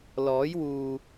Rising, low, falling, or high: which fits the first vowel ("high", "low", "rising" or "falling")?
rising